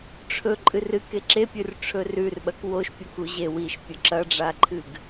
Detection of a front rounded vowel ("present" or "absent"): absent